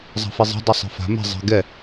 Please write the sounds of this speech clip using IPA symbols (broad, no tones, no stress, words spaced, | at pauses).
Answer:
zˤa̤fizˤɛ̤ dˤisˤe̤fa̤ mɛ̤ zˤi̤ ɡɛ